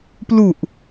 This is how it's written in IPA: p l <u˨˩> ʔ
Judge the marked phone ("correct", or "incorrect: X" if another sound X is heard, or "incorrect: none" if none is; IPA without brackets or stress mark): correct